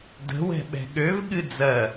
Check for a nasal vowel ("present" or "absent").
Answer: absent